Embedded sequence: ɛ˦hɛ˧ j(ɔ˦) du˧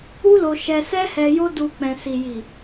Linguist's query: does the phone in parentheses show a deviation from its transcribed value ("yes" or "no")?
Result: yes